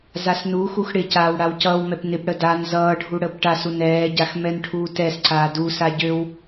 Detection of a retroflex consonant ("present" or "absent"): present